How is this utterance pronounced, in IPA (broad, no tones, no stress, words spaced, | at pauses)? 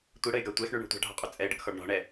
tʷiɽəɪ̯ɡa tʷɛxɳyɳo̤ tʷa̤ɖʱɔ̤qʼy t͡sʼɛɪ̯ɖəkxɔɖ ɳɔ̤ɳɛ